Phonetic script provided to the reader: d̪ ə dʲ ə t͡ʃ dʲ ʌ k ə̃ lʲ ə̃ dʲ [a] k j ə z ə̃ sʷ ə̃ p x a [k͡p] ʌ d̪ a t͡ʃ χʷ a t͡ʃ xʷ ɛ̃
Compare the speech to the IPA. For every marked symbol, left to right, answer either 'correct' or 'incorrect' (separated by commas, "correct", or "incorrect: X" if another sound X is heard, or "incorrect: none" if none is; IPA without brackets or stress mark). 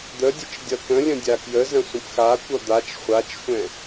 correct, incorrect: kʷ